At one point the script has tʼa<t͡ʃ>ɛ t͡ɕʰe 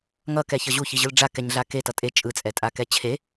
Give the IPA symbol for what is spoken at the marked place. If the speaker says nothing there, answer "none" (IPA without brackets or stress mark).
k